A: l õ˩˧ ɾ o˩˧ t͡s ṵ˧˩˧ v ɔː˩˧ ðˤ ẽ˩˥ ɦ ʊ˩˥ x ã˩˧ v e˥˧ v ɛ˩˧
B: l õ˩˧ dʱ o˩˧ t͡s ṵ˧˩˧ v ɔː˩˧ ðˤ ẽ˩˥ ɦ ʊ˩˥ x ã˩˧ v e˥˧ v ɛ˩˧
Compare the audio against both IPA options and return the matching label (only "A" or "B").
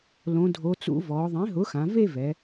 B